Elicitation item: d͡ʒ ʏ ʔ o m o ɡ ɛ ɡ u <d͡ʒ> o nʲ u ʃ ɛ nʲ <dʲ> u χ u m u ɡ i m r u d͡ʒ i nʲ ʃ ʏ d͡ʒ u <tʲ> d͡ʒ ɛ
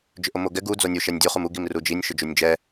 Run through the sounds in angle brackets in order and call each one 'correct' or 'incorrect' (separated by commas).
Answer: incorrect, correct, incorrect